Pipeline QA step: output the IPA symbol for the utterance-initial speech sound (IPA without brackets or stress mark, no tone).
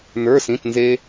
n